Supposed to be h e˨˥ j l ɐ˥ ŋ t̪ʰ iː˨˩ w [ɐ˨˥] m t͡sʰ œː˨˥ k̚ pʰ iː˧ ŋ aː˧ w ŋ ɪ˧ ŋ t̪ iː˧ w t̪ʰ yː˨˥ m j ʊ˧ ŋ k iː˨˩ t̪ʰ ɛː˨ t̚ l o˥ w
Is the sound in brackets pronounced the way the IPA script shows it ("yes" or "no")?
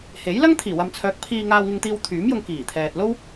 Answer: no